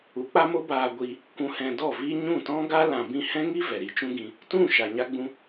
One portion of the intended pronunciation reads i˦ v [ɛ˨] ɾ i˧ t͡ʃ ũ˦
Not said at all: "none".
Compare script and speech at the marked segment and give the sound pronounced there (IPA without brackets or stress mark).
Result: ɛ˨